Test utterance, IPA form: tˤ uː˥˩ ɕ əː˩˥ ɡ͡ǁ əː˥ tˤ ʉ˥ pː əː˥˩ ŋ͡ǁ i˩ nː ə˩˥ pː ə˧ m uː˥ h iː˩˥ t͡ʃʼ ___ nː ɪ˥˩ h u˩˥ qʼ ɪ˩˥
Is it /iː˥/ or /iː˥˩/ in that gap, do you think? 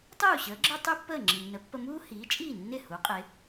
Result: iː˥˩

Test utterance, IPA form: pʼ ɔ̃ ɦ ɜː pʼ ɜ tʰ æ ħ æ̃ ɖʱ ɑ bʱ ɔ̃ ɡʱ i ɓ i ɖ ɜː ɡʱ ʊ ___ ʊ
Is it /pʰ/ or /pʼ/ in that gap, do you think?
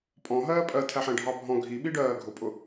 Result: pʼ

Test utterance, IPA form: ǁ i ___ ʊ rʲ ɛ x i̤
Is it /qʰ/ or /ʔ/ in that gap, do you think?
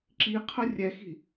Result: qʰ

